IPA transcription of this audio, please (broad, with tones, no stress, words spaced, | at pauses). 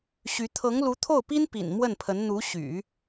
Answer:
ɕy˧˥ t̪ʰɤ˧˥ŋlu˧˥t̪ʰo˥˩ʊ̯pi˥n pḭ˨˩n mwə˥˩npʰə˧˥n n̪u˧˥ɕy̰˨˩˦